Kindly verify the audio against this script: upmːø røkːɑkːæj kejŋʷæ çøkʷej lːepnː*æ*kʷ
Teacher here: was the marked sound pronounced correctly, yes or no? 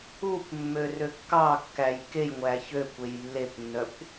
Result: no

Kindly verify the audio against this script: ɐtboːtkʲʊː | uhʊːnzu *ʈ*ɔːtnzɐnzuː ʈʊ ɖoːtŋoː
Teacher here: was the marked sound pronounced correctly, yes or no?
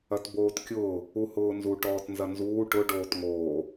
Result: yes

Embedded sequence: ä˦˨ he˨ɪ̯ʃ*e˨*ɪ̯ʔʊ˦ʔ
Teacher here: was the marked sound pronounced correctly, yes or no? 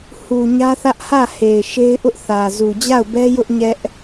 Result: no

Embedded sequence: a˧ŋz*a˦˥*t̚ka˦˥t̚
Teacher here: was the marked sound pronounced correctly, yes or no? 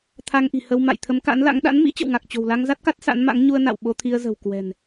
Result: yes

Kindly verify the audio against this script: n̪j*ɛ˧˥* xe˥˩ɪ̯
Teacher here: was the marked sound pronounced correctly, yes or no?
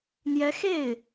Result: yes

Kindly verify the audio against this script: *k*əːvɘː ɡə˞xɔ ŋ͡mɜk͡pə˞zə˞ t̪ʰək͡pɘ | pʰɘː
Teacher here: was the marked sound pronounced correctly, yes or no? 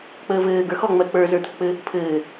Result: no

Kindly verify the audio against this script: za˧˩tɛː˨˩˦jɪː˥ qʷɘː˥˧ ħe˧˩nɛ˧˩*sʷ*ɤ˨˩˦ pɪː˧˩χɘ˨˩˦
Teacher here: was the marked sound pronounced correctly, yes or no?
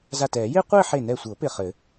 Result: yes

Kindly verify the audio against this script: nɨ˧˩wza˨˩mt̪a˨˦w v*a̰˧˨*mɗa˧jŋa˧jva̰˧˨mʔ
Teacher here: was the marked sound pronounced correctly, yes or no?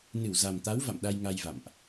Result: yes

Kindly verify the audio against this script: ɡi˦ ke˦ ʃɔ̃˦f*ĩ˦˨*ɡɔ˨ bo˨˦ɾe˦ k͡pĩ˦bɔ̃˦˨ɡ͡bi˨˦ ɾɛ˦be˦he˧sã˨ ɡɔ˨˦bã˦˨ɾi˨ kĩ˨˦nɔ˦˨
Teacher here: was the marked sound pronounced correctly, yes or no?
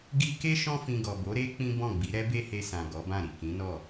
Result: no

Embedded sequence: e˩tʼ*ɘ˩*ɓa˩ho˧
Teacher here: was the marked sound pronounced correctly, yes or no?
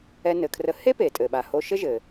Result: yes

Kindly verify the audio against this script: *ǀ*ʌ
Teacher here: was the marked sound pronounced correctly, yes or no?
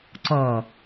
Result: yes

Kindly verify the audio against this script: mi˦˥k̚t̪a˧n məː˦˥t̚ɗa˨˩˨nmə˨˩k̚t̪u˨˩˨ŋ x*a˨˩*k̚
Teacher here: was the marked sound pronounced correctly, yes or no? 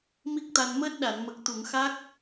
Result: no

